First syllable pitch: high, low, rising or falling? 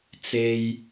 low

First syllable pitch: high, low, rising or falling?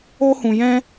high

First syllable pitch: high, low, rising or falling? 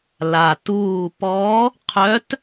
low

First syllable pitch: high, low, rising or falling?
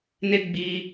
high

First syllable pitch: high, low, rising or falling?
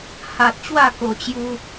low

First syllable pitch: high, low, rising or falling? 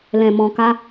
low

